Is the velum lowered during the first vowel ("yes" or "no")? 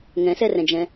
yes